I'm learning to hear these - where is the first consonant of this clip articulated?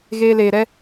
velum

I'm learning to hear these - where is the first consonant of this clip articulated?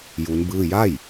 palate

